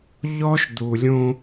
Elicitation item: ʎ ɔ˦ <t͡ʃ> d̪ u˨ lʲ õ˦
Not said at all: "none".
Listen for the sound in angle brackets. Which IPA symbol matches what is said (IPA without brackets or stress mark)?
ʃ